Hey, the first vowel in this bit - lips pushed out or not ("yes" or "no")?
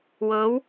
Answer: no